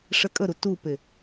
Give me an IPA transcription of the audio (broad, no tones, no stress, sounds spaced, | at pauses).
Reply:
ʂ ɛ kʼ ə ɾ u t u p e